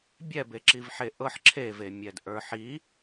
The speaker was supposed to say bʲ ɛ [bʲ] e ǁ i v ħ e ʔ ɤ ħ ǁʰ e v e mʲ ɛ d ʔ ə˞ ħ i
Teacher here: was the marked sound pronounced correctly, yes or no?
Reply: no